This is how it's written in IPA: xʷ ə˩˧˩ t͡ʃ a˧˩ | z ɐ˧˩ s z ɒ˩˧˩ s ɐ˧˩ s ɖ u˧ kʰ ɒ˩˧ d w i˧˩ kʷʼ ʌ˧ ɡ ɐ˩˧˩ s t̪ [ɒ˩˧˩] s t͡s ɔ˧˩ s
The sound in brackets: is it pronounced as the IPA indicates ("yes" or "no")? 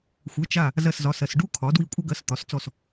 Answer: no